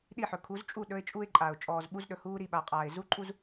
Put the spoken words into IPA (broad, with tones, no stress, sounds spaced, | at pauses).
ɗ i˦˨ ħ ɵ˨ kʰ u˨˦ z t͡ʃʼ u˦˨ ɗ ɵ˦ ɪ̯ t͡ʃʼ u˦ ɪ̯ ǃʼ a˨ ʊ̯ t͡ʃʼ ɔː˨ z ɓ u˦ z ɗ ɵ˨ h uː˦ ɾ i˨ ɓ a˨ qʼ aː˨ ɪ̯ z u˦ ǃʼ u˦ z